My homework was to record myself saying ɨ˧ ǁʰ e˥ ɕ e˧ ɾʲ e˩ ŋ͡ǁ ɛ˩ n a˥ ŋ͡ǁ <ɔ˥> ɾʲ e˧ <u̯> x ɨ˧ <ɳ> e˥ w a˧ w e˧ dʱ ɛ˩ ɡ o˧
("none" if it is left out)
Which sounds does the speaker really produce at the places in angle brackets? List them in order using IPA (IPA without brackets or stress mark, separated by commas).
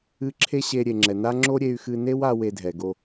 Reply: o˥, y̯, n